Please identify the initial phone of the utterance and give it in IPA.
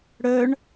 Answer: ɽ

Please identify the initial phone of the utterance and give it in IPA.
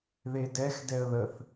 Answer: ð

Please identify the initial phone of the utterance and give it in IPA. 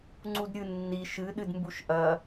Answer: ŋ͡ǀ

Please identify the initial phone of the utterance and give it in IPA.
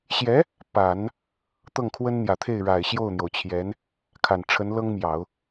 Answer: ɕ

